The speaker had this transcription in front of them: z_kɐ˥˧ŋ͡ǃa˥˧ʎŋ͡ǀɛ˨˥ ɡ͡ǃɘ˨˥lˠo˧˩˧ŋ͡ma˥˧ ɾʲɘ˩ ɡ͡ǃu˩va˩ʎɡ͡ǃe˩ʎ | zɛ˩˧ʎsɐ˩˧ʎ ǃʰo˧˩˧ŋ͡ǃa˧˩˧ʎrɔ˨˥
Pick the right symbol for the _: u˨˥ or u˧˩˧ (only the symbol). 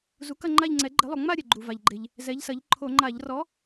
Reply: u˨˥